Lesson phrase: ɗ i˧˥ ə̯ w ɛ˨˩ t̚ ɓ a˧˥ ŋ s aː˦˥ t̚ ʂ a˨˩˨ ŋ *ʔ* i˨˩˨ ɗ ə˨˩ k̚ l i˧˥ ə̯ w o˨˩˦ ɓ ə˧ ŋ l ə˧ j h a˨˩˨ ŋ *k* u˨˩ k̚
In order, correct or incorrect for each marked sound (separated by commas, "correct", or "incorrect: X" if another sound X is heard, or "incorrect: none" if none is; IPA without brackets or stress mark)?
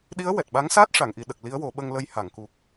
correct, correct